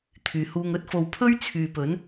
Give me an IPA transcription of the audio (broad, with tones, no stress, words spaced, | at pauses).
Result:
t̪ʰyː˨huː˧ŋɵ˥t̚fo˧w pʰɵ˥ɥt͡sʰyː˨ pɵ˨˥n